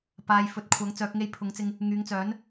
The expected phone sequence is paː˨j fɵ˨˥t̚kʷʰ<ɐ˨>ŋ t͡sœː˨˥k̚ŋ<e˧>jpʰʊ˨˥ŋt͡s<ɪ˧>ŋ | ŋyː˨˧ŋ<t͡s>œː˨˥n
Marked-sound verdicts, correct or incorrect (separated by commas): incorrect, correct, correct, correct